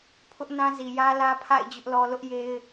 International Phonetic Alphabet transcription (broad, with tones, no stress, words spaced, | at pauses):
pʰʊ˦ʔnã˦ zi˨jä˦lä˦ pʰa̰˦˨ɪ̯ d͡ʑʊ˦ʔlɔ˦ lʊ˦ʔje˦ɪ̯